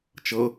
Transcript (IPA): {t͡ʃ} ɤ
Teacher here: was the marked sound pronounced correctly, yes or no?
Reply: yes